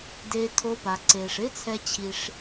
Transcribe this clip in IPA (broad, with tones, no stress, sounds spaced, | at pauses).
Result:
d eː˧ tʰ o˧ p a˨ ǀ eː˨ ʂ ɪː˦ t͡sʰ ɛ˧ t͡ɕʰ i˧ ʂ